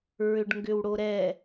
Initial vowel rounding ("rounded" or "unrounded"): rounded